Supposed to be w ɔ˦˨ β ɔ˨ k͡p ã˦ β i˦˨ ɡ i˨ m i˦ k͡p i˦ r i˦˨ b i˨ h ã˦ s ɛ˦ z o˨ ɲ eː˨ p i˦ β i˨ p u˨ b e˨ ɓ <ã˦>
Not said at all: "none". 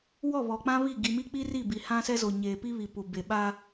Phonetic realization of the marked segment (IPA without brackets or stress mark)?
a˦